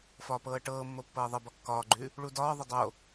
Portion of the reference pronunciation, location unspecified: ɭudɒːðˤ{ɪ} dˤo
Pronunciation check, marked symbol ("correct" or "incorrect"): correct